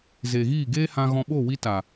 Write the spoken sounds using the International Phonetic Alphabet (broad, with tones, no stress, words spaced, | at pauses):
ze˨ɣiː˦˨ɡeː˦hã˧ ɣɔ̃˧ɓo˦˨wi˧ta˨